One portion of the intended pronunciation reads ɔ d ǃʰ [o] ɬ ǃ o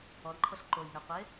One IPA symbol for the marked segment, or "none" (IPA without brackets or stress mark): ɤ